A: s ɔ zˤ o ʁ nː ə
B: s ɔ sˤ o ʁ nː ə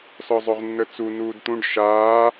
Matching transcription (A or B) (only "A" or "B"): A